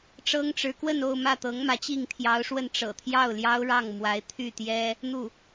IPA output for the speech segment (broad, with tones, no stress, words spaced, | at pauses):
ʈ͡ʂɤ˥ŋʈ͡ʂɻ̩˧˥ kwə˥˧no˥˧ʊ̯ mä˥˩t̪ɤ˧˥ŋmä˧˥ t͡ɕi˥˩ŋt̪ʰjɑ˧˥ʊ̯ʂwə˥˩n ʈ͡ʂɤ̰˨˩t̪ʰjɑ˥˩ʊ̯ljɑ˥ʊ̯ɻɑ˥˩ŋ mwa˧˥ɪ̯t̪ʰy˥˩t̪jɛ˥ | n̪u˥˩